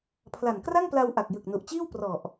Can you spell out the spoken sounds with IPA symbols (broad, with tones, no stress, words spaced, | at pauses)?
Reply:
pʰla˨˩nkra˥˩ŋpla˧wʔa˨˩k̚ jɯ˨˩k̚nu˨˩ʔt͡ɕiː˥˩w prɔ˨˩ʔ